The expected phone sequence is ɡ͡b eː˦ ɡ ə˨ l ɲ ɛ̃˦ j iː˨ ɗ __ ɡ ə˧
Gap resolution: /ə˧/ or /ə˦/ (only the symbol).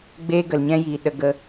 ə˧